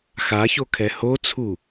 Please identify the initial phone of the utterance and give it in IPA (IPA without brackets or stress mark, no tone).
x